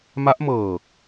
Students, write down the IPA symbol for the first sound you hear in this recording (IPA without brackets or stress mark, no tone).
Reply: m